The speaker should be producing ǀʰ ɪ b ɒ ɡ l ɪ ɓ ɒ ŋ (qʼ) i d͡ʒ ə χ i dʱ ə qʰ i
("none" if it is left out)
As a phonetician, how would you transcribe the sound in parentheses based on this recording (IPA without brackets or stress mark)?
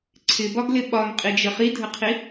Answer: qʼ